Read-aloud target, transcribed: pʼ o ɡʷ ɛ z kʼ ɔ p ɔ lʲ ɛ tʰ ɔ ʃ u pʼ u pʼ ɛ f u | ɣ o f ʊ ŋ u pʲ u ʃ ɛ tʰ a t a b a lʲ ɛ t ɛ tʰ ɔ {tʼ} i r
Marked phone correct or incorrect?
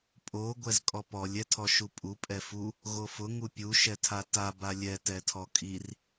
incorrect